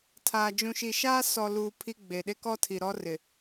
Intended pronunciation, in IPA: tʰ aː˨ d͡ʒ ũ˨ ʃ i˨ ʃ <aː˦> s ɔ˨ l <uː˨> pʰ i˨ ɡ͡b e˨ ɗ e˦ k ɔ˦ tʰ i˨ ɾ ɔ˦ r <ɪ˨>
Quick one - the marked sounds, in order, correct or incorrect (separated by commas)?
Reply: correct, correct, correct